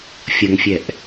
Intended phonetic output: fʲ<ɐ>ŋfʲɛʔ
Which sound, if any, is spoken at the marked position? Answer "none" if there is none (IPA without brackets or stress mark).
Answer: ɐ